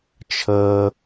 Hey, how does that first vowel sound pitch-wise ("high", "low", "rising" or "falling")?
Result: low